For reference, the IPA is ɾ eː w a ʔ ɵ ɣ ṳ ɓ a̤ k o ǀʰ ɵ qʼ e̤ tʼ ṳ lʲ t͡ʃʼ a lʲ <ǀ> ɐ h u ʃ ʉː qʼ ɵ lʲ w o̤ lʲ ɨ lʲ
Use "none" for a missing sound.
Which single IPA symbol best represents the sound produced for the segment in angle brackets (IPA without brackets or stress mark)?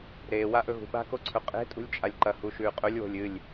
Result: ǃ